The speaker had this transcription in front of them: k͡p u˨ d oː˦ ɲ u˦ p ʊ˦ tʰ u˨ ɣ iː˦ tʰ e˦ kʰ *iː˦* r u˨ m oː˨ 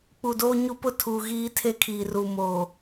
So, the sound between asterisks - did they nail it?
no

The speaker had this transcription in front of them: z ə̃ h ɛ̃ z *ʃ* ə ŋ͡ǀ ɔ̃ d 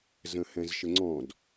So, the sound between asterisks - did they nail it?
yes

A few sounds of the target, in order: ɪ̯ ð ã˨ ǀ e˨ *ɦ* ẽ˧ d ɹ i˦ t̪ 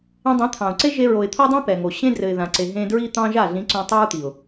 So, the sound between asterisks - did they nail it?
yes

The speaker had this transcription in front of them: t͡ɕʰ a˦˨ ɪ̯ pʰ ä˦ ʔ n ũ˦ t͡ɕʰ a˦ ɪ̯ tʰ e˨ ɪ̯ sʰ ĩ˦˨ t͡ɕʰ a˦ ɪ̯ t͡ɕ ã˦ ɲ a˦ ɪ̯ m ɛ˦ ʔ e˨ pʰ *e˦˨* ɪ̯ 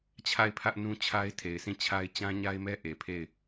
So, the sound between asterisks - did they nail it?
yes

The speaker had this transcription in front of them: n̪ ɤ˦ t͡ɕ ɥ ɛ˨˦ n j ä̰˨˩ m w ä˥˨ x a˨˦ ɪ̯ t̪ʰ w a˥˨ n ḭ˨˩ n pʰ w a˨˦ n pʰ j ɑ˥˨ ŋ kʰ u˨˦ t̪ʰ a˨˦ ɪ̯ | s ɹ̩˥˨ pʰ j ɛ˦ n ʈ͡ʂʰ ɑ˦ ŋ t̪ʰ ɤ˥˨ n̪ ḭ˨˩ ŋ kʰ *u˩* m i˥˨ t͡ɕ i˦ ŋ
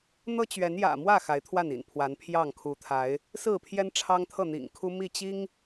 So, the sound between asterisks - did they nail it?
no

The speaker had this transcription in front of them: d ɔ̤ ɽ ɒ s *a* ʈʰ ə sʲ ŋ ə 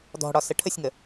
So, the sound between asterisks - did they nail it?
no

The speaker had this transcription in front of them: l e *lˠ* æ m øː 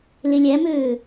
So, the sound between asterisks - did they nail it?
no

